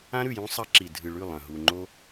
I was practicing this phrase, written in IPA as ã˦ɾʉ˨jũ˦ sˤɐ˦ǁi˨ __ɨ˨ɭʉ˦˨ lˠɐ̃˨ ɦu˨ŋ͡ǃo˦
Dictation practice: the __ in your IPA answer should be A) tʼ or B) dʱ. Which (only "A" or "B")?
B